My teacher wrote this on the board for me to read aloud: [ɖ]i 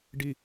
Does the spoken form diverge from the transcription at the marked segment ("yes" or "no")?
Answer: no